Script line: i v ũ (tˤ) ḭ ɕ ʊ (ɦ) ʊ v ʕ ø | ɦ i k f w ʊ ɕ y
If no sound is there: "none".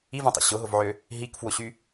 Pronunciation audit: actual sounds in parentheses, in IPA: tˤ, ɦ

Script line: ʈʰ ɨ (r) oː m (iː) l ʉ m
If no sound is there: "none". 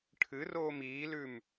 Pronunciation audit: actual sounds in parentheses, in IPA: r, iː

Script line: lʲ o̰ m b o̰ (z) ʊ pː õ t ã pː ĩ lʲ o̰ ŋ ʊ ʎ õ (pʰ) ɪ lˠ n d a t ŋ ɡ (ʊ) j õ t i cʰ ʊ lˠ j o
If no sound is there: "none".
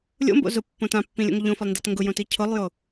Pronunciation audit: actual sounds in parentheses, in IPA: z, f, ʊ

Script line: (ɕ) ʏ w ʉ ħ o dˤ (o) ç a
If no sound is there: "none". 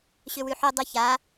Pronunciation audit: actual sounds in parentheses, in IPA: ɕ, o

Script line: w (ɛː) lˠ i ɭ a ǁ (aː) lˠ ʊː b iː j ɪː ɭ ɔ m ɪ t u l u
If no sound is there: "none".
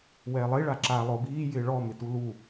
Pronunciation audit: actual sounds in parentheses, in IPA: ɛː, aː

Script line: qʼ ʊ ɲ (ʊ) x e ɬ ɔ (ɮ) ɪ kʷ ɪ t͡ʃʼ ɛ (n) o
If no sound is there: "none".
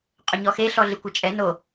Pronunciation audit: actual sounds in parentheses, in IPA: ɔ, ɮ, n

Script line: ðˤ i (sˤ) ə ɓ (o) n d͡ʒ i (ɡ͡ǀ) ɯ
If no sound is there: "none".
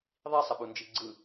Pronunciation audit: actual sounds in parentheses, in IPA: sˤ, u, ɡ͡ǀ

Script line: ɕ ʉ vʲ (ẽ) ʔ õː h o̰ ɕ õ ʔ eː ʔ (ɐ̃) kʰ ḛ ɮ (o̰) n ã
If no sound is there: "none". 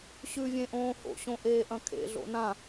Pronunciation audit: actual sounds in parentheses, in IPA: ẽ, ɐ̃, o̰

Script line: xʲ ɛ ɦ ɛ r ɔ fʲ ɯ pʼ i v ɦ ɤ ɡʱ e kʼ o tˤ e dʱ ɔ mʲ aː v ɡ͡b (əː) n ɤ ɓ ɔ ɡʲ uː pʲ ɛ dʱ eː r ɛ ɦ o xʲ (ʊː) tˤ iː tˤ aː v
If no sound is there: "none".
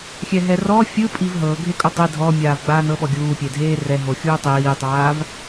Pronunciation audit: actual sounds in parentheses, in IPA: aː, uː

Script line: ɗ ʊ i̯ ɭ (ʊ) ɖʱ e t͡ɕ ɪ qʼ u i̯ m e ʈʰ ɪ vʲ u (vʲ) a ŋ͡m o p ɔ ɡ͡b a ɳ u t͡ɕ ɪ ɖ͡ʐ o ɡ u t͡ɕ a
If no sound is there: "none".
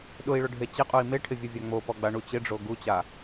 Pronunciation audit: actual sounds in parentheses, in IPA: ʊ, vʲ

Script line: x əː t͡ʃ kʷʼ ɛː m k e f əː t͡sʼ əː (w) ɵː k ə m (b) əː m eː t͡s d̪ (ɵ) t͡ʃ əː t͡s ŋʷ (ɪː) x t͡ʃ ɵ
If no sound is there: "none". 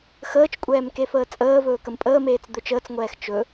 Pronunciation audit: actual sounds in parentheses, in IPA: v, pʼ, ɵ, ɛː

